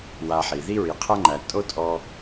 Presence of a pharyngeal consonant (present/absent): present